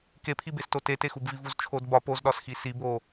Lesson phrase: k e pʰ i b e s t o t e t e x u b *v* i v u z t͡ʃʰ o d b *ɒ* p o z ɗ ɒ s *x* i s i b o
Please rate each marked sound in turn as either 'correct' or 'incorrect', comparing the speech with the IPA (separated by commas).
correct, correct, correct